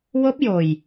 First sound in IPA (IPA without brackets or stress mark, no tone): w